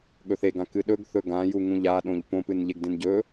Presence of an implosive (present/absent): present